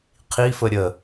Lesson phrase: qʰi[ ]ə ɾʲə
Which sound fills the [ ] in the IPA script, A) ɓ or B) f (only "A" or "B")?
B